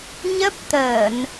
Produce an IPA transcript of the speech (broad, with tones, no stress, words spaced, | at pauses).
ɲə˦˥p̚t̪əː˧˩˨n